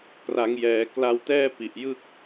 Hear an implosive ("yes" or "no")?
no